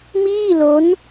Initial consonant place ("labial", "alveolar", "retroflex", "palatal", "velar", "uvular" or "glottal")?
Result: labial